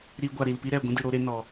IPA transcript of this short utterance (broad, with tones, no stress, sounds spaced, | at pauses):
ɾ i˧ ɡʷ a˨ ɾ i˨ l p i˦ ɾ ɛ˨ ɡʷ ũ˦ d ɨ˨ ɾ o˧ ɾ e˧ n ɔ˨